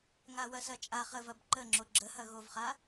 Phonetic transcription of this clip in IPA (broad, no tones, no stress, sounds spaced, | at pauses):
ŋ a w ɐ s ɐ t͡ʃʼ a χ ə v ɐ b ǃ ə ŋ͡ǁ o ɡ͡ǁ ə h ɐ ɣ o v χ a